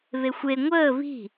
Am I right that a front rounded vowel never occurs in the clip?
yes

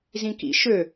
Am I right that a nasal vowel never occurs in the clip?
no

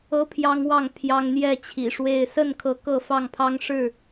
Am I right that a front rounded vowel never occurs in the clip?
yes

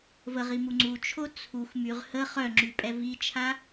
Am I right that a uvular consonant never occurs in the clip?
no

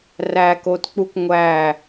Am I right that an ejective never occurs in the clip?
yes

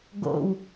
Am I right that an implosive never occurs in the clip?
yes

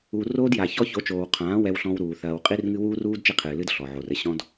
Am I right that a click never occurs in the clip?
yes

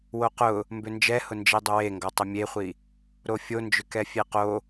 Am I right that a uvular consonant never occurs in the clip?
no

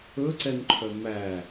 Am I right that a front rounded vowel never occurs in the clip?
no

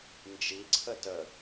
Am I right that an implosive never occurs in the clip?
yes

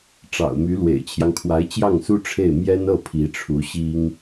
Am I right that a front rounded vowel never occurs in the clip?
no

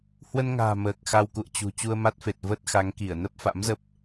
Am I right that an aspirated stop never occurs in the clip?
yes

